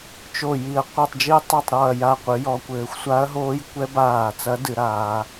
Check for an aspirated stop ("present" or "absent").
absent